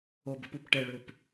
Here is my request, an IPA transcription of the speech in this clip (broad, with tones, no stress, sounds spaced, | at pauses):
o˨˩ b ə˩˧ p u˩˧ p ʈ ɛ˨˩ ɭ ø˨˩ p